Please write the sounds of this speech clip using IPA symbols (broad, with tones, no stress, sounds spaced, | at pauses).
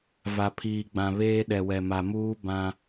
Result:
v a˨ pʰ iː˨ ɡ͡b ã˨ β eː˦ ɗ ɛ˨ w ɛ˨ m a˨ m uː˦ b ã˦